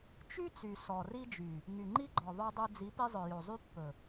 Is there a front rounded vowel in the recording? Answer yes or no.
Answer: yes